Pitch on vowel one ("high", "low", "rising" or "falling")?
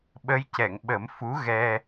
rising